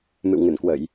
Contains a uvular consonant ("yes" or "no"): no